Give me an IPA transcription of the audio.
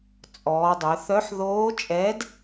t͡sʼ ɔː˩˧ dˤ œ˩˧ θ œ˧˥ ħ ð oː˧˥ t͡ʃʼ ɛ˧˥ d

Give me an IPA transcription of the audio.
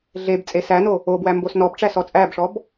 ɮ e b t͡sʼ e s æ n o | o b w æ m b o s n ɔ b ʈ͡ʂ æ s ɔ t͡sʼ æ b ʂ ɔ b

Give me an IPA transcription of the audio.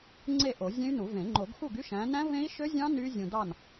ŋ͡ǀ e˥˨ ʔ o˨˩˦ zʲ ẽ˦˥ y̯ n u˨˩˦ v ẽ˨˩˦ ŋ͡ǃ o˨˩˦ ɡ x u˥˨ ɡ y˦˥ ʃ æ̃˨˦ n æ̃˦˥ v ẽ˦˥ i̯ ʃ ø˦˥ zʲ ɑ̃˦˥ n y˦˥ zʲ ũ˨ d ɑ˥˨ n

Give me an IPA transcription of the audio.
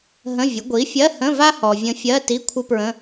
ɦ ə̃˧˥˧ vʲ ə˩˥ ɡʷ i˩˥ fʲ ɜ˧˥˧ h ə̃˧˥˧ v a˥ h ɔ˨ vʲ ə̃˧˥ fʲ ɜ˧˥˧ t i˧˥˧ kʷʰ ə˥ p ɹ ə̃˧˥˧

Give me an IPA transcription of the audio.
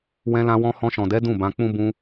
w ɛ̃˧ l ã˧ w ɔ̃˧ h ɔ̃˧ ʃ ɔ̃˨ d ɛ˨˦ d ũ˦˨ b ã˧ k͡p ũ˦ b ũ˧

